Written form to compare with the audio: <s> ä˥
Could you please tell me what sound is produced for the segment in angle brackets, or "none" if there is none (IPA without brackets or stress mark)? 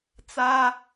t͡s